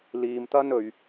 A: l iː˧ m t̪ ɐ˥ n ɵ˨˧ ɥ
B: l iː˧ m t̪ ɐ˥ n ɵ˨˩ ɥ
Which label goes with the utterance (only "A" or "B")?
A